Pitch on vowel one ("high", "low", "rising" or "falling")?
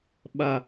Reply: low